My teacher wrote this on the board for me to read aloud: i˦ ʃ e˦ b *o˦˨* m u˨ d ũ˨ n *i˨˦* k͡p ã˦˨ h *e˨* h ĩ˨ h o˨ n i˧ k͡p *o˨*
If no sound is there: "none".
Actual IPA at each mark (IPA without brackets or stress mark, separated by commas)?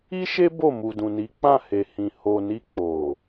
o˦˨, i˨˦, e˨, o˨